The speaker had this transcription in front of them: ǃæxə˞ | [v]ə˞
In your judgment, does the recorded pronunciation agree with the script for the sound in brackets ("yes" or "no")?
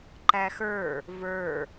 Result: yes